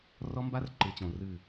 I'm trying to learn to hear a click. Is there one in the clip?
yes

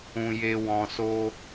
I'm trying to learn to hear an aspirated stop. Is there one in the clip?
no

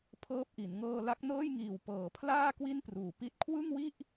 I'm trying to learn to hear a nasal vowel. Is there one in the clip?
no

